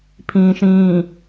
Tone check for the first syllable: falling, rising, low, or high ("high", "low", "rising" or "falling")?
low